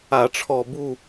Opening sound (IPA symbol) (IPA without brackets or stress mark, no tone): a